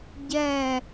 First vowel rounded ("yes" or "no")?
no